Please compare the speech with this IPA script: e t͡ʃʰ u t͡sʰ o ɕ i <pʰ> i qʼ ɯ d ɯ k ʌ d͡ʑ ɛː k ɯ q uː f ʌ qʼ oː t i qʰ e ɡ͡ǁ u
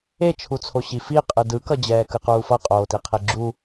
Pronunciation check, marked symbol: incorrect: f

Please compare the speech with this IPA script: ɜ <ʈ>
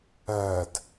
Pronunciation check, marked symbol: incorrect: d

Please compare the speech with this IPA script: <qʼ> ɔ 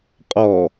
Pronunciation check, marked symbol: correct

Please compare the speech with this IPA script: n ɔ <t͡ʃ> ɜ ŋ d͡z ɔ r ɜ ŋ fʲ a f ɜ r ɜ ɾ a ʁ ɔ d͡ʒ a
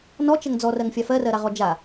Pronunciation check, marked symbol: correct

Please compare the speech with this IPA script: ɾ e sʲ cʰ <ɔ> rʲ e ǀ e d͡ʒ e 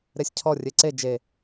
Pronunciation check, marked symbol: correct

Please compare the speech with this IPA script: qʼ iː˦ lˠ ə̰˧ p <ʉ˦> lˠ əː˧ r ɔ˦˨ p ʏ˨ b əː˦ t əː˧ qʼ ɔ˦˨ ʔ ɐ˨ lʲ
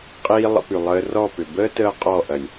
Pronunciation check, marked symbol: incorrect: ʉ˨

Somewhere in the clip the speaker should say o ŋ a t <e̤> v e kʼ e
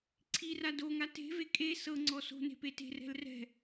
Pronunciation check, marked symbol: correct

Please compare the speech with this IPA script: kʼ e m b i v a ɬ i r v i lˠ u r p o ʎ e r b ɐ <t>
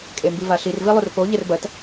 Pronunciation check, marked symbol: correct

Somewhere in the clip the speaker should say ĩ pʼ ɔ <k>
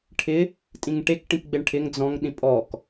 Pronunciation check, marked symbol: correct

